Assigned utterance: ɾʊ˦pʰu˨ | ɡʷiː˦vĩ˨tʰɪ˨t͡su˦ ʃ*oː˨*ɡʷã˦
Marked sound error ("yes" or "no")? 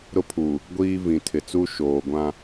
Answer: no